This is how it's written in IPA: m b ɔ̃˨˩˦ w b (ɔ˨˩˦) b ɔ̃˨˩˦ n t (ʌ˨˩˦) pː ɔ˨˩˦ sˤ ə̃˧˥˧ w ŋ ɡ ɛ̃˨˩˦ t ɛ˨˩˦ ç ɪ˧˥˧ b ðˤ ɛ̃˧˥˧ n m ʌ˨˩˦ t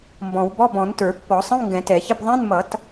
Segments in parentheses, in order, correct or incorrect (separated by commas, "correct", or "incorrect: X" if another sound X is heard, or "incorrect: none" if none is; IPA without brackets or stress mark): incorrect: ɔ˧˥˧, incorrect: ə˞˨˩˦